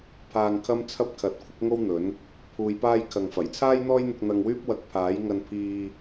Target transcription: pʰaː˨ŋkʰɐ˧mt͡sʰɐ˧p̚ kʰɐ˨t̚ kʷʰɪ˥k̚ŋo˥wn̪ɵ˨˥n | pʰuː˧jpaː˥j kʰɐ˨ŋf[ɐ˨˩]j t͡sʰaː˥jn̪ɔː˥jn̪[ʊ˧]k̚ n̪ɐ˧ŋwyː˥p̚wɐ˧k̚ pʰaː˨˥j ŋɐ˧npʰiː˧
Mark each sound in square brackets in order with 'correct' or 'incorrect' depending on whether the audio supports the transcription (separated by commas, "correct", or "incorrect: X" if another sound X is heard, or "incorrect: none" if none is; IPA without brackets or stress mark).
correct, correct